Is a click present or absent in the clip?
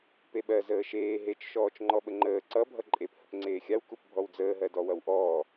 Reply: present